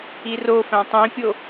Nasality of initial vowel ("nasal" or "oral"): oral